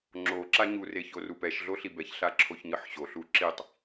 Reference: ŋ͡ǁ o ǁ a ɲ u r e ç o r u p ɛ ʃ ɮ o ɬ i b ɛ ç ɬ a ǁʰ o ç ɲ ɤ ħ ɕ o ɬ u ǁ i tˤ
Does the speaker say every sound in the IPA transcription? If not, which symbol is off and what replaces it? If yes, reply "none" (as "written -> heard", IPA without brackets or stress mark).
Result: none